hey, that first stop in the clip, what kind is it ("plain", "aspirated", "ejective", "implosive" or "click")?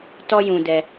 plain